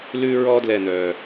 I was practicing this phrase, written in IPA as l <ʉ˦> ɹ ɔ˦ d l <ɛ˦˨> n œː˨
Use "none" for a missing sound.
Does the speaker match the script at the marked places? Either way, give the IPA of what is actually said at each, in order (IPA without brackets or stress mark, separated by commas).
ʉ˦, ɛ˦˨